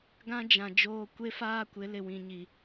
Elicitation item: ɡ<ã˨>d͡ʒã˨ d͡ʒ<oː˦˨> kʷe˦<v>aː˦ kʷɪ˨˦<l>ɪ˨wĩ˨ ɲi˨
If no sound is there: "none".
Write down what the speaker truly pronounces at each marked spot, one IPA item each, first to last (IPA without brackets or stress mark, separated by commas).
ã˦, oː˦, f, l